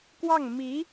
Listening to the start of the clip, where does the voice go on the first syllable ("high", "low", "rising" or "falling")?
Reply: falling